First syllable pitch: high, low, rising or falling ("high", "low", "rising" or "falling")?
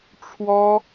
high